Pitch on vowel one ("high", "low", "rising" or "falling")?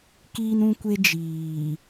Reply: high